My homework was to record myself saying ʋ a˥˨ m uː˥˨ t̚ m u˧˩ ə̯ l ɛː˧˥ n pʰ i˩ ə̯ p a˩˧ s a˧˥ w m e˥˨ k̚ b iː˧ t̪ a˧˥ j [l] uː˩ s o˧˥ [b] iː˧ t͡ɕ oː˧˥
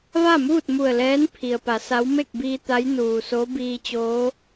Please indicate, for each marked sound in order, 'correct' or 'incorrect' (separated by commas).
incorrect, correct